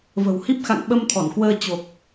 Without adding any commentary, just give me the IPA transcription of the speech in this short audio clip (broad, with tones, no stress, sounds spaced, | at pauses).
v ə̤˨˩ w h i˦˥ p̚ x a̰˧˨ ŋ ɓ ə˧ m t̪ʰ ɔ˧˩ n k w əː˧ t͡ɕ o˨˩ k̚